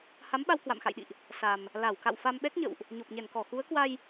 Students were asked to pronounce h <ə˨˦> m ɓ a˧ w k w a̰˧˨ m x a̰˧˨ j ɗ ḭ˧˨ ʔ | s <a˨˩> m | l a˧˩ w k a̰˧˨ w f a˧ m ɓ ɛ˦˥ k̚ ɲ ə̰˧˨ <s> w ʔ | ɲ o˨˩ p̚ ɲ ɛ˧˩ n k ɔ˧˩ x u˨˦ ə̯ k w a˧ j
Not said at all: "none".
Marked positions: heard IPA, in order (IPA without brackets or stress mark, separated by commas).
a˨˦, a˨˩, none